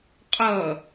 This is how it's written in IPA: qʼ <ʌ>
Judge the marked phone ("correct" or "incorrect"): correct